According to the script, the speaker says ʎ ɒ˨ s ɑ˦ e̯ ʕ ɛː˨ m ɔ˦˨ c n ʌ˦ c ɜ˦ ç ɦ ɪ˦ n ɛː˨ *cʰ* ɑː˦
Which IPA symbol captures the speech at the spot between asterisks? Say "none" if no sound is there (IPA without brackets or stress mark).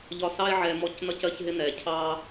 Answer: cʰ